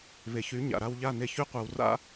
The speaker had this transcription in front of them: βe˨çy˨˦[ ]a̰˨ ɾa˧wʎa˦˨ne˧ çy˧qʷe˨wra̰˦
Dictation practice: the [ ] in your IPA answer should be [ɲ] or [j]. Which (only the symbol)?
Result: ɲ